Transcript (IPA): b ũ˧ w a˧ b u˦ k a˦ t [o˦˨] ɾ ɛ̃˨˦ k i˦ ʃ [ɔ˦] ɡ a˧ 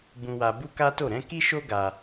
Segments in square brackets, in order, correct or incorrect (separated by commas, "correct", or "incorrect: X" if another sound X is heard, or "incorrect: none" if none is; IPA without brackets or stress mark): correct, incorrect: o˦